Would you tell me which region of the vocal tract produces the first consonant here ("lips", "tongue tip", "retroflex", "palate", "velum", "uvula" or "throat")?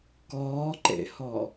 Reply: velum